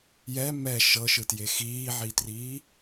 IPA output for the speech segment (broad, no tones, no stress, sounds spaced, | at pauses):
j ɛ m ɛ ʃ ɤ ʃ ɯ t j e x iː ʕ i t r iː